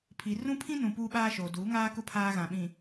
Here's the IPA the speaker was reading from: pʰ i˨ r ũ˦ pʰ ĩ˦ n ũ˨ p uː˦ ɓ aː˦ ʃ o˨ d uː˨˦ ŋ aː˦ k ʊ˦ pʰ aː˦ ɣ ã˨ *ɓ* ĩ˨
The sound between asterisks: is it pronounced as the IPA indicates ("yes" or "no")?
yes